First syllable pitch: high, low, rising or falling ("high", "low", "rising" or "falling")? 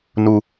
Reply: high